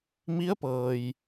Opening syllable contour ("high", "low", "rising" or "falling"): rising